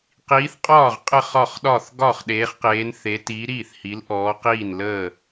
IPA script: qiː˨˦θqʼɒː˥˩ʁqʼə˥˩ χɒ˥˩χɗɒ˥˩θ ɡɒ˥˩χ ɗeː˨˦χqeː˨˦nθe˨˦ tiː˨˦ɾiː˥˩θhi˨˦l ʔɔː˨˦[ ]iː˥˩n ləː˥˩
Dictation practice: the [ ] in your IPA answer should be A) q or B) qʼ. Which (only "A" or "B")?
A